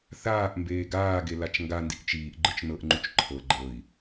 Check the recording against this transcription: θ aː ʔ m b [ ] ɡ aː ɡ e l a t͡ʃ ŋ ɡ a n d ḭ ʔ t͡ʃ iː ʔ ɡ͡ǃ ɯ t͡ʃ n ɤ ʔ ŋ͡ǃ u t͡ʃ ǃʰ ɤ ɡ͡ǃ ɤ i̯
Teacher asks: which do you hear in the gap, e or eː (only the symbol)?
eː